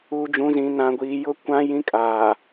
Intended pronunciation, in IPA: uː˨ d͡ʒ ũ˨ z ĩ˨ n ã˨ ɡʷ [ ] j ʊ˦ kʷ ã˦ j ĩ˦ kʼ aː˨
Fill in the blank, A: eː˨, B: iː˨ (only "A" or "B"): B